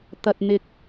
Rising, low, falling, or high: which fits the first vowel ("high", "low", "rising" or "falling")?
low